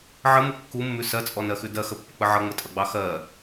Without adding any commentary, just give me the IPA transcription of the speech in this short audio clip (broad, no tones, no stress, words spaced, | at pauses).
ʕəmu kːumːʉ sɜt͡sʼɔnɜxʉ dɜxəpːək͡pə ʕʌŋ͡mətʼʌɡ͡bɑ xɜ